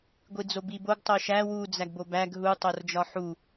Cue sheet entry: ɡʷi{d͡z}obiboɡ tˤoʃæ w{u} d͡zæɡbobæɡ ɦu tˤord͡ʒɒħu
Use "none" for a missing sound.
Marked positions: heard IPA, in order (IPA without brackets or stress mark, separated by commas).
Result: d͡z, u